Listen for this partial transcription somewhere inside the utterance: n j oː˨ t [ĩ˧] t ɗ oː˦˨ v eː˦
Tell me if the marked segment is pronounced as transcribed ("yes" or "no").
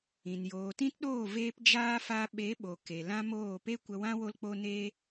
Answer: no